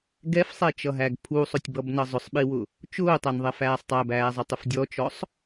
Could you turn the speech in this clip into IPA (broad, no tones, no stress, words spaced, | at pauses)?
ɡɛfsˤɛt͡ʃʌɦæɡ pʰusˤʊtʲbʌbnʌ zˤʊsˤɓiwʊ | t͡ʃʊːtˤænðˤɛfæːsˤ tˤæbæːzˤʌtˤʊf dʲɔt͡ʃɔsˤ